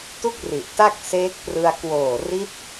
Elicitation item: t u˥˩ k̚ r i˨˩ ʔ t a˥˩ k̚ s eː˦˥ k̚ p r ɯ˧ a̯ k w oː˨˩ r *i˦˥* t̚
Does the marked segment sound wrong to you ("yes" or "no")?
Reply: no